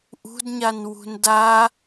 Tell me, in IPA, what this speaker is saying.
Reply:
ʔṳdɲan wṳnda

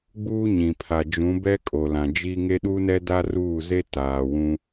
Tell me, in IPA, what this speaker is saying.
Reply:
ɡ͡buː˦ɲĩ˨pʰa˨ d͡ʒũ˨˦bɛ˦ kʼo˨lã˨d͡ʒi˦ ŋe˦ɗu˦nɛ˦ da˦ruː˦˨ze˦ taː˨wũ˦

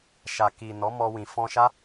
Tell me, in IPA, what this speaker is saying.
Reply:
ʃa˨ki˨ nɔ˨˦mɔ˧wĩ˨ fɔ̃˧ʃa˦

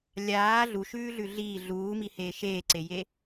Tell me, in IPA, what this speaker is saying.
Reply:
lʲaː ɮuʃʉːɮʉ ɮiː ɮuːmiheː ʃeːǀeje

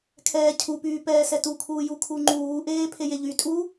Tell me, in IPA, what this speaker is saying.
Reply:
kʰɛːcʰupyː pɛːsɛtu kʰuːju kʰuŋ͡ǃuːʔeː pʰejeʎy tʼu

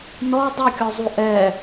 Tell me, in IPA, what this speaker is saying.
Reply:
nɔ dˤukʲɔzˤu ʔɛ

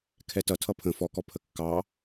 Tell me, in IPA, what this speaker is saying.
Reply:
kʰɛtʌ tʰʌpʰə̃ fɔkɔ pʰəkːɑ

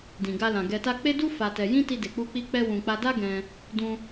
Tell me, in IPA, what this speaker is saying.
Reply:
dĩ˨ɡa˧lã˨ ɡɛ˨ta˧ k͡pe˦du˦ fa˧tɛ˧ jĩ˦ti˧de˨k͡pu˧ k͡pi˧ k͡pɛ˧wũ˨k͡pa˧da˦ ɡɛ̃˧ | dũ˧

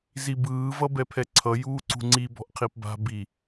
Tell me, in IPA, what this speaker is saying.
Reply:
zibɯː vʌbɛpʰɛǀʰʌ juːǀṳŋ͡ǀi bɔ̤ʔqʰipba̤ bi

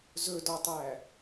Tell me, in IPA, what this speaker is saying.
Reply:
zɵdɔtˤæ

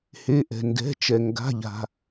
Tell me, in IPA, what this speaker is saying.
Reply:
he˩˧˩ʔɛ̤˩ndɛ̤˩˧˩t͡ʃɛ˩ ŋɡa̤˩˧˩ʎa̤˩

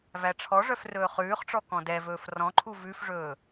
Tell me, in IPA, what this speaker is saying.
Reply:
væʈ͡ʂʰɔʐœf rɵːχʉːχʈ͡ʂɔ kɔ̃dɛvɵːf rɔ̃ǃʰu vʉfʐɵː

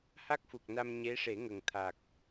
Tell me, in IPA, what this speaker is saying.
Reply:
ha˦˥k̚fu˨˩k̚na˧m ɲe˧˥ʂe˨˩˦ŋə˨˩ŋ t̪ʰa˨˩k̚

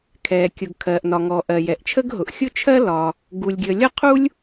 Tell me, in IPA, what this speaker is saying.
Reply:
kʰɛ˩kʲʊ˩ɡ kʰɜ˩ʔnɒ˩ŋɔ˩ ʔɜ˩jɛ˩ʔt͡ʃʰə˥ɡɦʊ˩ʔ xʲʊ˥t͡ʃʰɜ˥lɒ˩ | ɡu˩lʲɡʲə˩lʲʌ˥ qʰu˥lʲ

